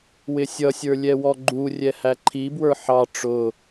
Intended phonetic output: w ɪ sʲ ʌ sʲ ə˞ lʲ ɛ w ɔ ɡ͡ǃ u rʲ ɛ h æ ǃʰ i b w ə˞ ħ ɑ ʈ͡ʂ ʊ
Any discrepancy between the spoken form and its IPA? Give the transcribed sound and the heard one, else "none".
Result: none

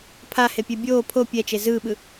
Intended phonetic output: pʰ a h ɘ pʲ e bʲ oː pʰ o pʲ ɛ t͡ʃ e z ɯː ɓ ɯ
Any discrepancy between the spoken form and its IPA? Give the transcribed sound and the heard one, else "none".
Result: ɘ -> e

